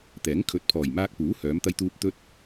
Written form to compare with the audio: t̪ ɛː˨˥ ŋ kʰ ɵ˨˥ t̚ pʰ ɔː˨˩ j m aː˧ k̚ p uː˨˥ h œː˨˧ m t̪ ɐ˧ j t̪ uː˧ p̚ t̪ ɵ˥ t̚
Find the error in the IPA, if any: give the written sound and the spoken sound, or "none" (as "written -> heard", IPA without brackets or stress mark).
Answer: none